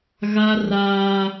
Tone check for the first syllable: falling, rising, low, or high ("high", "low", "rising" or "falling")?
high